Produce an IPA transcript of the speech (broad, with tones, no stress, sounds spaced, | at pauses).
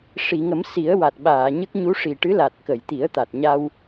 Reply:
ʂ i˨˩˨ ŋ ə˨˩˦ m s i˨˩˦ ə̯ w a˨˩ t̚ ɓ aː˨˩˨ ɲ ə˦˥ k̚ ɲ u˧˥ ʂ i˨˩ ʈ ɨ˧˥ l a˨˩ t̚ k ə˨˩˨ j t̪ i˨˩˦ ə̯ t̪ a˨˩ t̚ ɲ a˧ w